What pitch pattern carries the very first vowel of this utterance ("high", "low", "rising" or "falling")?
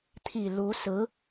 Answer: low